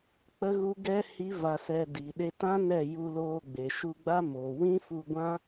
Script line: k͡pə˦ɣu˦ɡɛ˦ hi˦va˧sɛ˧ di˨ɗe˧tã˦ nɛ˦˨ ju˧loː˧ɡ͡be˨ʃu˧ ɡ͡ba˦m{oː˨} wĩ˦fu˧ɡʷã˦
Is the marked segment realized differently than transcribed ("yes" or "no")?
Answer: no